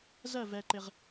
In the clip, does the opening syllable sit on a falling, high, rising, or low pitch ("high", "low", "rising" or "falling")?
falling